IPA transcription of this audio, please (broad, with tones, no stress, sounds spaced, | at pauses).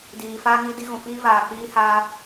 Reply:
d iː˨ f aː˦ ŋ i˦ d i˦ ɣ ũ˨ f iː˦ v aː˨ k͡p iː˦ h aː˦